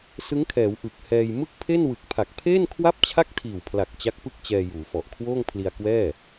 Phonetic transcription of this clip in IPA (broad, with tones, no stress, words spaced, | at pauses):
sɯ˦˥ŋkʰɛː˩˦w ʔɯ˨˩k̚hɛː˧j mɯ˥˩k̚pʰe˥˩nwɯ˨˩k̚ pʰa˨˩k̚pʰeː˥˩nkʰwa˥˩p̚t͡ɕʰa˥˩k̚ tʰiː˨˩wpʰla˨˩k̚ t͡ɕa˦˥k̚pɯ˥˩k̚t͡ɕɛː˧ juː˩˦fɔ˨˩ʔ kʰwoː˥˩ŋpʰli˧a̯kwɛː˥˩